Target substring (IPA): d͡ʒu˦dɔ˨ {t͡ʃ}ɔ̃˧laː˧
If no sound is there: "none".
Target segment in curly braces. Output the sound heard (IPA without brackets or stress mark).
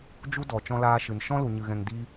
t͡ʃ